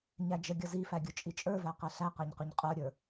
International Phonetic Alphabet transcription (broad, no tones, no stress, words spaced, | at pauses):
ɲæd͡ʒəɡʲʌ zifæ ɡʲʊt͡ʃʼit͡ʃʼə˞væ qɛɬæqæɲ qʊɲqʼə˞ɾʲə˞